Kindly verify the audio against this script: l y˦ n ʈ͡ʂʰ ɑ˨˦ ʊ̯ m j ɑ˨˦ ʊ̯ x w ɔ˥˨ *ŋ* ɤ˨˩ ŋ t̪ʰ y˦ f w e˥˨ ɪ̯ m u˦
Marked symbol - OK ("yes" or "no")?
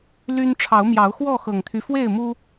no